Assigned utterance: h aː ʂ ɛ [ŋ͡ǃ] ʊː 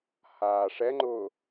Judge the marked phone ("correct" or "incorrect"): correct